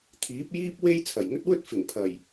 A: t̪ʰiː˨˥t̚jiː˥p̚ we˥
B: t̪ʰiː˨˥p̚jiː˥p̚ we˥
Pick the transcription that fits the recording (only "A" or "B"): B